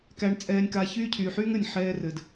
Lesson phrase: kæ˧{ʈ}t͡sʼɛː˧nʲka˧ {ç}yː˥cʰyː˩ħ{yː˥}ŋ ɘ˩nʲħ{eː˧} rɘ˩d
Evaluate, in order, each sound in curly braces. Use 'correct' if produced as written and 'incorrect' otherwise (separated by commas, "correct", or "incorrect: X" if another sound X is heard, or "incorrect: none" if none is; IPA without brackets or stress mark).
incorrect: ɳ, correct, correct, incorrect: ɛː˧